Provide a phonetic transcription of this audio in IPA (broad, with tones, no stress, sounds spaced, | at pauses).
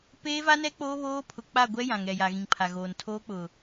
p eː˦ v a˦ n ɛ˦ k͡p oː˦ β oː˦ pʰ ʊ˨ k͡p a˦˨ ɡʷ ɛ˦ j ã˨ ŋ ɛ˨ j a˨ ɣ ĩ˨ ŋ pʰ a˨ ɣ oː˨ n tʰ oː˦ k͡p ʊ˨